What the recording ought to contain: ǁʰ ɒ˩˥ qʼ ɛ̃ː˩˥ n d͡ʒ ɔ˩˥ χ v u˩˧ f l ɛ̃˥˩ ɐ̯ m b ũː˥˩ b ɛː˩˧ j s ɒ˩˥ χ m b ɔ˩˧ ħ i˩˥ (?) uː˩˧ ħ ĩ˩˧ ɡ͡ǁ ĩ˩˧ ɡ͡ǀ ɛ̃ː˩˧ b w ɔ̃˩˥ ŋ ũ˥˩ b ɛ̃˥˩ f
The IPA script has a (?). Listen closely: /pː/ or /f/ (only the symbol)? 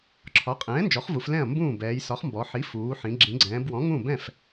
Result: f